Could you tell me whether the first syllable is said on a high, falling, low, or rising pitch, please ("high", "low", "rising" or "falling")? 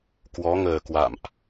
rising